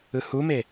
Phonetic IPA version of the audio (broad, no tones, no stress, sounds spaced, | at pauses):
ɯ h u m e